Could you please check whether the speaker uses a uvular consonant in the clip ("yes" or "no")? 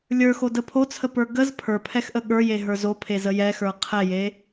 yes